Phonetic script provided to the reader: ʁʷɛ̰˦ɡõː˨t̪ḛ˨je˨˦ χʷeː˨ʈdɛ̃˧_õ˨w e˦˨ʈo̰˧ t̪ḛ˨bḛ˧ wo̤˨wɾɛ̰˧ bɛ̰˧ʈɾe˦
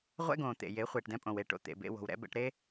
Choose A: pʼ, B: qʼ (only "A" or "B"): A